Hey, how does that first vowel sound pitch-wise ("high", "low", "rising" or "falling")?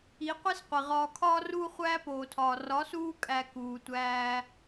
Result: rising